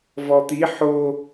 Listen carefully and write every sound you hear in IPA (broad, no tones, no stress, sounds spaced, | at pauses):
v ɔ t̪ i ħ o